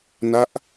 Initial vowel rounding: unrounded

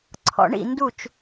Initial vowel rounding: rounded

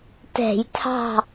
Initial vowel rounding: unrounded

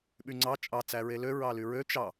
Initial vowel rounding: rounded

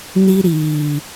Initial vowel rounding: unrounded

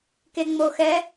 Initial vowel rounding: unrounded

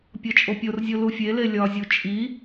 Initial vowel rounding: rounded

